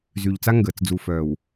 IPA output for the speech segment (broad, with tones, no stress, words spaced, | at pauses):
zy˨ʎt͡sa˦ŋɡəː˨t͡s d͡zu˨fœː˨w